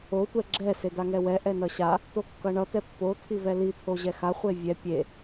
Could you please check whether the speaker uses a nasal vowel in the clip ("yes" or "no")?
no